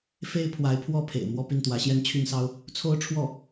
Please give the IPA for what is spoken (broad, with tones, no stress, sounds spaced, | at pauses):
f e˥ ɪ̯ pʰ w a˧˥ ɪ̯ pʰ w ɔ˥˩ pʰ ḛ˨˩ ɪ̯ m w ɔ˥˧ p i˥˩ n t̪ w ä˧˥ ɕ j ɛ˥˧ n t͡ɕʰ y˥˩ n s ɑ˥ ʊ̯ | t͡sʰ o˥ ʊ̯ ʈ͡ʂʰ w ɔ˥˩